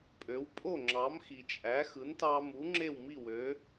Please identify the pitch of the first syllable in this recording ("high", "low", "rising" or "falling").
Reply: rising